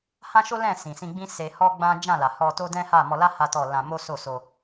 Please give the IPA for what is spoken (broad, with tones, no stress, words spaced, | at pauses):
hã˦ʃo˦lɛ̃˦˨ sĩ˨sĩ˧ɡ͡bĩ˦ se˧hɔ˦ɡ͡bã˦ d͡ʒã˦˨la˨hɔ˧ to˦dɛ̃˦ha˦˨ mɔ˧la˦ ha˦tɔ˦˨ lã˧mo˦so˦˨ so˧